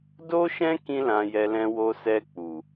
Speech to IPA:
do˦ʃɛ̃˦ kĩ˦lã˧jɛ˧ lɛ̃˧wo˧ sɛ˧ k͡pu˨

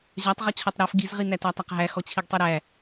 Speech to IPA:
ʑatˤ ʁɔt͡ɕʰɔtˤɾæf ɡizʁi nætætˤaqɦæ xɔt͡ɕʰiɡtˤiɾæ

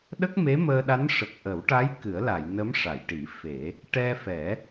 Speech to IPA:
ɗə˦˥k̚me˧˥məː˧ɗa˧˥n ʂə˨˩k̚ʔə˨˩˦wʈa˧˥j kɨ˨˩˦ə̯la˨˩˨j nə˧˥mʂa˨˩˨jʈi˨˩˦ fe˨˩˦ | ʈɛ˧fɛ˨˩˦

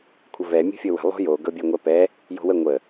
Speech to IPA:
kʷʰəvɛ mʲo̤fʲɤwə̤ lˠo̤jo ɡɤbʲɛŋʷɛpɛ | jo̤wə ŋʷə

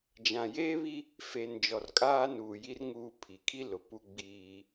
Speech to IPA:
d͡ʒã˨jeː˦βi˦ | fe˨n d͡ʒɔ˨rkʼaː˦nuː˨ji˦r ŋuː˨ pʰi˨kʰi˦ lʊ˨ pu˦ɡ͡biː˦

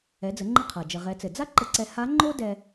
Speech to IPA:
ɛ˩˧d͡zə˩˧ŋ͡ǃə˧qʰa˩ d͡ʒə˩ʁɛ˩˧t͡sɘ˩ d͡za˥ ǃə˧ǀɛ˧ ha˧˥ ŋ͡ǃo˥dɛ˧

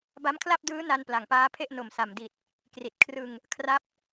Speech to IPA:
ba˦˥mkʰla˥˩p̚dɯː˦˥ na˧n pla˨˩ŋpaː˦˥pʰe˥˩ʔ no˨˩msa˨˩mdi˨˩t̚ | kri˨˩t̚kʰrɯ˧ŋ | kʰra˥˩p̚

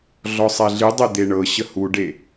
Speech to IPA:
ɮɔsˤɛɮɨdˤe d̪eɳɤɕə huɖe

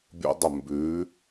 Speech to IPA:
bʲo̰˦dˤə˦˨ mbʉ˨˦

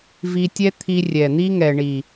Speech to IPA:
vi˧tʲɛ˦t̪ʰi˧ rʲɛ˨n̪i˦ŋɛ˨ɳi˨

